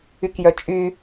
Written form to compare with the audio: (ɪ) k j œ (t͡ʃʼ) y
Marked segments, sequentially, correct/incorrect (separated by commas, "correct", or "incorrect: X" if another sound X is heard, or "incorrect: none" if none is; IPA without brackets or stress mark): incorrect: y, correct